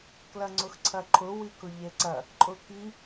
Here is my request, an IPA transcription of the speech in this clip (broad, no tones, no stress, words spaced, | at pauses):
klɐŋ͡ǀʊxǀʰɐǃʰʊ wikʊʎeǀɐ | ǃʼʊki